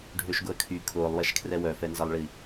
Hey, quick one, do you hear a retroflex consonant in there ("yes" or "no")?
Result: yes